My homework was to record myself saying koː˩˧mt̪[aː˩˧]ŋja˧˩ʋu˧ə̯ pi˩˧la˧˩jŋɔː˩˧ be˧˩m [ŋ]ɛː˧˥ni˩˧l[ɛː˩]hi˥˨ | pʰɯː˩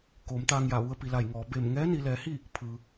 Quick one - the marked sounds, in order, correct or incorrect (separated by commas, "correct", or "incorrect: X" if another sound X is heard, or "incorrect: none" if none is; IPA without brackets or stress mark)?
incorrect: aː˧, correct, incorrect: ɛː˩˧